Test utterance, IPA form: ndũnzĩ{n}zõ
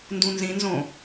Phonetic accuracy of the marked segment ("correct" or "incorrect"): correct